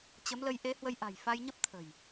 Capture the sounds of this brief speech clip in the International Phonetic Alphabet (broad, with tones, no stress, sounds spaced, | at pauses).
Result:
t͡ɕ ə˨˦ m l ə˨˦ j ʔ e˨˦ h w ə˧ j ʔ a̤˨˩ j f a˧ j ɲ ə˦˥ p̚ t̪ʰ ə̤˨˩ j